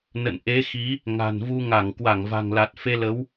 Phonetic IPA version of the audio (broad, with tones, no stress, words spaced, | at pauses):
nə̰˧˨n ʔe˨˦xi˨˦ | ŋa̤˨˩nvu˧ ŋa˧˩ŋ kwa˧˩ŋva̤˨˩ŋla˨˩t̚ fe˧lə˨˦w